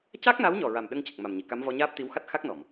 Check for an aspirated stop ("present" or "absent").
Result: absent